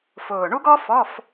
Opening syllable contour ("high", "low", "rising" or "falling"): low